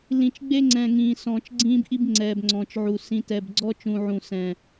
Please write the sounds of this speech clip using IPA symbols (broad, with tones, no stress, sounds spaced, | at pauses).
l ĩ˨ t͡ʃ ɡ͡b e˦ ŋ͡ǀ ɛ̃˨ ŋ ĩː˨ s ɔ̃ː˨ t͡ʃ ɡ͡ǀ ĩː˦ b ʔ i˦ b ŋ͡ǀ ɛː˨ b ŋ͡ǀ ɔ̃ː˨ t͡ʃ ʕ u˨ s ĩ˨ t ɛ˨ b ɡ͡ǀ ɔ˦ t͡ʃ ũ˨ ʕ ũ˨ s ɛ̃˨